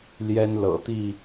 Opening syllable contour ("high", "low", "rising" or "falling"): high